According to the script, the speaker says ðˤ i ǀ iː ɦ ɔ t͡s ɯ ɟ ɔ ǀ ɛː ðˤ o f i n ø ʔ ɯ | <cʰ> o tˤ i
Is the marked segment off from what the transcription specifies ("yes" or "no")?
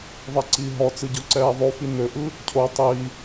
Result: no